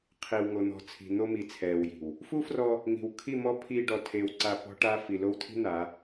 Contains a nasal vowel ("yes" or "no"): no